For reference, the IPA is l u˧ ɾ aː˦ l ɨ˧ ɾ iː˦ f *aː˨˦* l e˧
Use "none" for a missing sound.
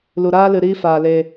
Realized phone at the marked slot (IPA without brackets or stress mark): aː˧